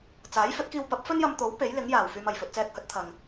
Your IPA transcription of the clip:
t͡s aː˨˥ j f ɵ˨˥ t̚ k iː˧ w p ɐ˨˥ p̚ f ɵ˥ n j ɐ˧ m t̪ o˨˥ w p e˨˥ j l ɪ˨˥ ŋ j aː˨˩ w f yː˨ m ɐ˨˩ j f ɵ˨ t̚ t͡s ɛː˧ k̚ h ɵ˨˥ t̚ t̪ʰ ɐ˨ ŋ

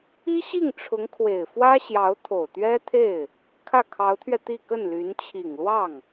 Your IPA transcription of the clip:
i˥ ɕ i˥˩ ŋ ʈ͡ʂʰ ʊ˧˥ ŋ kʰ w e˨˩ ɪ̯ f w ä˥ ɕ j ɑ˧˥ ʊ̯ t̪ʰ o˨˩ ʊ̯ t̪ ɥ ɛ˥ t̪ʰ e˥˩ ɪ̯ | kʰ ä˥˩ kʰ ɑ˧˥ ʊ̯ t̪ʰ ɥ ɛ˧ t̪ i˥˧ k ə˥˩ n l y˧˥ n t͡ɕʰ i˨˩ ŋ l w ɑ˥˩ ŋ

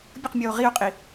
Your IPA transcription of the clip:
bʲ ə q mʲ ɔ o̯ ʁ i o̯ qʼ i

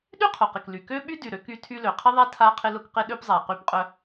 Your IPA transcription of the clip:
ɗ y˦ qʰ ʊ˨ q ɪ˨ k l y˨ k ø˦ ɓ y˦ d y˨ ɾ ø˦ k y˦ tʰ y˦ l ø˨ qʰ ɪ˦ ðˤ a˦ tʰ a˦ qʰ ɪ˦ l ʊ˦ k q ɪ˦ ɗ ø˦ p zˤ a˨ q y˦˨ p qʼ œ˦

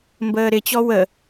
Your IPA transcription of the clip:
m b əː ɾ ɪ t͡ɕ ɔ w ə

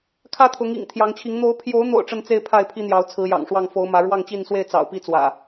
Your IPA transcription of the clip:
kʰ ä˦ t̪ʰ ʊ˨˦ ŋ ḭ˨˩ ŋ t̪ʰ j ɑ˨˦ ŋ t͡ɕʰ i˨˦ ŋ n̪ o˨˦ ʊ̯ pʰ j o˨˦ ʊ̯ n̪ o̰˨˩ ʊ̯ ʈ͡ʂ ə˦ n t͡s e˦ ɪ̯ pʰ a˥˨ ɪ̯ pʰ i˦ n̪ j ɑ˨˦ ʊ̯ t͡sʰ ɹ̩˨˦ j ɑ̰˨˩ ŋ ʂ w ɑ˥˨ ŋ f o˨˦ ʊ̯ m ä˨˦ ɻ w ɑ˥˨ ŋ t͡ɕ i˥˨ n s w e˥˨ ɪ̯ t͡s ɑ̰˨˩ ʊ̯ p i˥˨ t͡s w ä̰˨˩

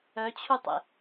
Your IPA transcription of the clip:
œ t͡ɕʰ u tˤ ḛ

